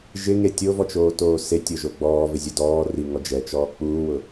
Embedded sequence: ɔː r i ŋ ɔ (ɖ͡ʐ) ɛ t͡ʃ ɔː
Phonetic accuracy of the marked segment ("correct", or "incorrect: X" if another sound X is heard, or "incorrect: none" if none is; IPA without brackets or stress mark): incorrect: d͡ʒ